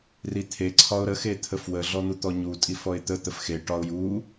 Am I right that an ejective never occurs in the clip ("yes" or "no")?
no